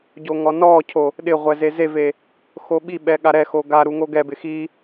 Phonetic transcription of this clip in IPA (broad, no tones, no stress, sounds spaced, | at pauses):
ɟ o ŋ ɔ n ɔ cʰ o | ɗ ɪ ʁʷ ɛ z e z e v e | x o ɓ i ɓ ɛ ɠ a ɾ ɛ x o ɡ a ɾ u ŋ o ɡ ɛ b ɪ x i